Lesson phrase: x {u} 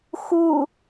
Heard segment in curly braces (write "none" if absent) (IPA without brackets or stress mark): u